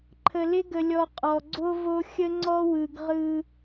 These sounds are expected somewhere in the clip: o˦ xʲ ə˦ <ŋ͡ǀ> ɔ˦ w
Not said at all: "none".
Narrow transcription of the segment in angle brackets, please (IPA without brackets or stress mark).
ŋ͡ǀ